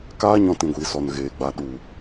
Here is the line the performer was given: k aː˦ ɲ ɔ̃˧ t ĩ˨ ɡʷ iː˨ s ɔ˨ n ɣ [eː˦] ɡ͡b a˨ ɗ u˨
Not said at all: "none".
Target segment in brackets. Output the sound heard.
eː˨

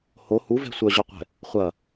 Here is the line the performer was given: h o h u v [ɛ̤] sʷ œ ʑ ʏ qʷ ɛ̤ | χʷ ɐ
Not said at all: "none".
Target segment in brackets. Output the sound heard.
ɛ̤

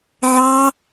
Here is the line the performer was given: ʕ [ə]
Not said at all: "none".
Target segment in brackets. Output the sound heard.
ɑ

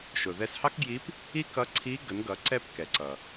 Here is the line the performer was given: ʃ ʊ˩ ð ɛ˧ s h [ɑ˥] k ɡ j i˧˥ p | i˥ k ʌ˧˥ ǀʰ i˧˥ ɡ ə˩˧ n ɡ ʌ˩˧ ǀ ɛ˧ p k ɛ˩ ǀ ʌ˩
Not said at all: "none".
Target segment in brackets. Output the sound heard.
ɑ˥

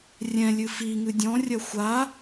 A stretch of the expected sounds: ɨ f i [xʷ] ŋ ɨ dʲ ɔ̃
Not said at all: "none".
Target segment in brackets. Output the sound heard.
none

